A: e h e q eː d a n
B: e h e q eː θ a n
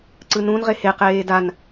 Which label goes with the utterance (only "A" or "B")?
A